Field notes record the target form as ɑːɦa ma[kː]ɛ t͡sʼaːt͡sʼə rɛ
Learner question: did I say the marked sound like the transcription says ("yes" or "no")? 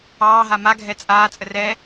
no